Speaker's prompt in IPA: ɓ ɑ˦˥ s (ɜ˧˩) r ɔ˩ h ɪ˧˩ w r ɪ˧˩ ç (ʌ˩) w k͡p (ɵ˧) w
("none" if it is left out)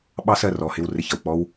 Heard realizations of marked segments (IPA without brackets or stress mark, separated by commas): ɜ˧˩, ʌ˩, ɔ˧